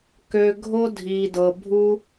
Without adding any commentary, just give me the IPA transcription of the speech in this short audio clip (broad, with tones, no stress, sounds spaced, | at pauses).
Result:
k ø˧ ɡʱ o˥ dʱ iː˧ d ɤ˧ bʱ u˥